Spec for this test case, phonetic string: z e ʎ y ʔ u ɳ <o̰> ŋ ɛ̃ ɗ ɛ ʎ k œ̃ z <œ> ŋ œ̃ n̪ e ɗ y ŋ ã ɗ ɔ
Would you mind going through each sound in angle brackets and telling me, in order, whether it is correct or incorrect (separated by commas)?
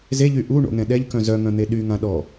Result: correct, correct